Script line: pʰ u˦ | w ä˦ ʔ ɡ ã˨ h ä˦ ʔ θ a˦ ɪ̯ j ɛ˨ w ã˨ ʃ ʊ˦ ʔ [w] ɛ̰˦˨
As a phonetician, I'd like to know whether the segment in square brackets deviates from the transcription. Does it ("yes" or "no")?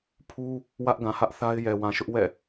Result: no